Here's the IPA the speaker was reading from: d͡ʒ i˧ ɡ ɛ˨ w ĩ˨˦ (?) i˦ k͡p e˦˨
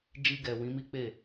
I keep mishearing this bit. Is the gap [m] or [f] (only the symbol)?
m